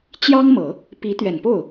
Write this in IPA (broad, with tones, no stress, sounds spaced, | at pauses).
t͡ɕ j ɑ˥ ŋ m ɤ˨˩˦ | p i˧˥ t̪ ɥ ɛ˨˩ n p o˥˩ ʊ̯